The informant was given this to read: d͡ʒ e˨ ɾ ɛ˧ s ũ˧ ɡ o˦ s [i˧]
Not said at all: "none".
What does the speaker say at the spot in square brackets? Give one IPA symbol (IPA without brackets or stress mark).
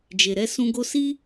i˦